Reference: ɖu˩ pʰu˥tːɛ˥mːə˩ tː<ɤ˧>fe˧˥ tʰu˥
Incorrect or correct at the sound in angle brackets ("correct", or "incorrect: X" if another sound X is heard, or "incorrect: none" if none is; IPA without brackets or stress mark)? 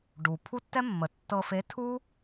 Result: correct